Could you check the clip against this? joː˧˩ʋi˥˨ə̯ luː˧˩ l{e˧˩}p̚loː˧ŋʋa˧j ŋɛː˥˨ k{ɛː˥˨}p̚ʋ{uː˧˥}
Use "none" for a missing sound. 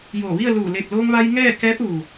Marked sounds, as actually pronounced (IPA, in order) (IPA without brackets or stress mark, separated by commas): e˧˩, ɛː˧˥, uː˩